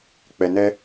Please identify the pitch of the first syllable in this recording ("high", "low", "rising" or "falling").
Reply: low